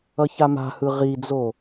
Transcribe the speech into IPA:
ʌçama̤hɯ ʁid͡zo

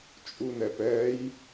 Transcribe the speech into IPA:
t͡ʃʼunɛpɛj

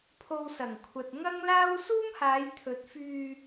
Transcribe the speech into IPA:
pʰo˧wsɐ˨˩ŋkʷʰɐ˨t̚ ŋɐ˥ŋlaː˥w suː˥mhaː˨˧jt̪ʰɵ˨˥t̚fyː˧

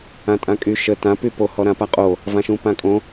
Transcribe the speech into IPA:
ãtʼãkʼy ʃə tã pypo hɔɾãpaqʼo | vãʃũpãkʼõ

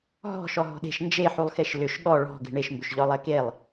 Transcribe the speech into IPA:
ɦɔ̤ ʃɔɦɔ̤ɗe̤ʃ nd͡ʒeħulˠxeʃ lʏʃ ɠɔ ɭɔ̤ ɡe̤ɳeʃmbʏʃ ʎɔlˠekelˠ

